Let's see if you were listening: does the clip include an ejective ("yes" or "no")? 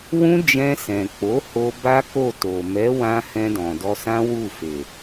no